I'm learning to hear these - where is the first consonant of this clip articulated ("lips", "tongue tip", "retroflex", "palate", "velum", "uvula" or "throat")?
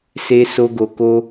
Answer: tongue tip